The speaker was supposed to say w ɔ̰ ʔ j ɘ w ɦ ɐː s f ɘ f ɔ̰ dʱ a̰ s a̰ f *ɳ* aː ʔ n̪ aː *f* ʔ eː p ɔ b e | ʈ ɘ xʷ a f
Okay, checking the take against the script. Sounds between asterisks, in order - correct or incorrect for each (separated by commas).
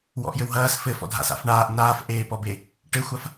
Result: correct, correct